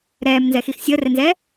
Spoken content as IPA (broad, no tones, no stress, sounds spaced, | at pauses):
ɾ ɛː m n z ɛ x i x sʲ əː r ɛ n z ɛː